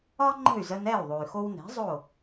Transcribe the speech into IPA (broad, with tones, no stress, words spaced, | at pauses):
ɒ˥ŋ͡ǃə̤˥˩y̯zə˧n ɛ˥˩y̯ðˤo˩y̯xo˧wnɛ̤˩˥ zˤo˥˩